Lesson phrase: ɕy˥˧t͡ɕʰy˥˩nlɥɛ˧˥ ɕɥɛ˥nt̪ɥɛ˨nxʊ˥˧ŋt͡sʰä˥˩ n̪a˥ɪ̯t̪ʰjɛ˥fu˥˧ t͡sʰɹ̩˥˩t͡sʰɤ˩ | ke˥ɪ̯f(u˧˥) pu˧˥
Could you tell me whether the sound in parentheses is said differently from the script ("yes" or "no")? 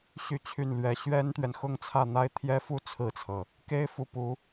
no